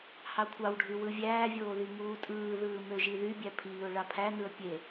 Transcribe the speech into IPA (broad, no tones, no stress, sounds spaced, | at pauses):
h ɑ kʷʰ ɑ w ɖʱ y w ɯ vʲ æː vʲ oː ð i ŋ uː tʼ ɯː ð ɯː m ø ʒ i ð y bʲ æ pʰ iː ʊ̯ ɭ ɑ pʰ æ n ɯ ə̯ pʲ e